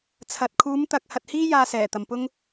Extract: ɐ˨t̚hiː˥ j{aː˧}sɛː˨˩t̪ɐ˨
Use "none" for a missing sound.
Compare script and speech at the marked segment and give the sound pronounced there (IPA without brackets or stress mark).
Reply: aː˧